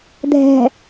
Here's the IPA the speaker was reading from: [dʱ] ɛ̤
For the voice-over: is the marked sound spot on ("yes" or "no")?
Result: yes